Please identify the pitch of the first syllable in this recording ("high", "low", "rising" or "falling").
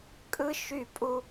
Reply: high